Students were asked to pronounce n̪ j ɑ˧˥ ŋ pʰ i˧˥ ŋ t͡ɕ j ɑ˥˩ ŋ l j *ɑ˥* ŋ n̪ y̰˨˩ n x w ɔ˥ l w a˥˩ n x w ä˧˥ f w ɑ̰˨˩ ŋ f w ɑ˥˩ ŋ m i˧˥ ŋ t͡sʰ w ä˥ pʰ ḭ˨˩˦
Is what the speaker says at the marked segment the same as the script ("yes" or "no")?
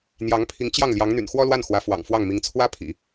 no